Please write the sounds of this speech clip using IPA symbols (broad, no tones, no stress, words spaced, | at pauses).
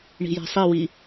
ɳi̤jɛ̤sˤiwi